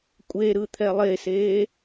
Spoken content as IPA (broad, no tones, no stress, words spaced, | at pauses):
kʷʼeɾɯt̪ʰɛ lˠeseː